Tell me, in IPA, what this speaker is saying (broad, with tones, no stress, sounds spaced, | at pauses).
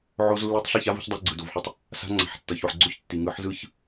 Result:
ʕ o˧ z lː ɯ˧ tˤ ɬ i˦˨ ç a˦ v i̤˧ ç dˤ e˧ ɡ͡ǀ ɯ˨ d o˨ v ħ ɯ˧ tˤ | s a̤˧ ŋ͡ǀ a̤˨ ħ tː ʌ˨ ç o˨ ħ ɡ͡ǀ o˦ ç tː i˨ ŋ ɯ˨˦ ħ z ɯ˦ ç